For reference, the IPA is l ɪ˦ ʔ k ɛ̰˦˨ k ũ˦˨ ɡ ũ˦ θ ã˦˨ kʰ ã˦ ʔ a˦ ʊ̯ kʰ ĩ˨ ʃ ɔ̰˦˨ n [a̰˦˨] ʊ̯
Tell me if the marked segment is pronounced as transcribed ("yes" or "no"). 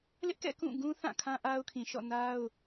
no